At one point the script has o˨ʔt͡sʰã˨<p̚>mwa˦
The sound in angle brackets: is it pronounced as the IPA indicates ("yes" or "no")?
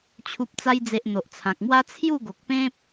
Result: no